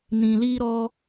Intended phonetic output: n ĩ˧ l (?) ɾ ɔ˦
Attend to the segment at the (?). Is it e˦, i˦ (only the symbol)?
i˦